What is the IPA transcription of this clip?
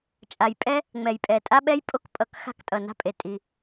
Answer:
t͡ʃʼ a˩ j pʼ ɛ˥ | ŋ͡m ɛ˩ j pʼ ɛ˩ tʼ a˥ ɓ ɛ˥ j pʼ o˥ k pʼ ʌ˩ k x a̤˥ k tʼ ʌ˩ n a̤˥ pʼ e˩ tʼ i˩

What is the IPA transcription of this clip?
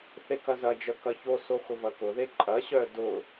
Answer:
θ e k ɐ z ɐ d͡ʒ œ k ɐ ç o s o x ʊ v ɐ k ʊ ð e ǃʼ ɐ ɕ œ d ʊ

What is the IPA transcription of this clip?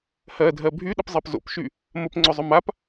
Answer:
h ɜ dʱ ɜ bʱ y ɗ ə p zˤ ɜ p z o̰ p ʃ y | m ə p ŋ͡ǀ ʊ zˤ ʊ m a p

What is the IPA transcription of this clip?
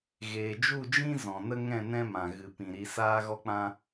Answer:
ɣ eː˨ d͡ʒ u˦˨ d͡ʒ ĩ˦ z ɔ̃˨ n ə˦ ŋ ɛ̃˦˨ n ɛ̃˦ m ã˨ ɣ ɨ˨ p ĩ˨ ɾ i˧ s aː˦ ɣ ɔ˦ k͡p ã˦

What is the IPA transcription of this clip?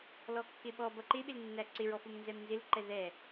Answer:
l ɔ kː ɪ ɓ ɔ b ʌ ǃ ɪ ɓ ɪ l nː æ ǀ ɪ ɹ ɔ f ʊ m n z ɛ m n z ɪ l ǃ ɛ ð ɛ

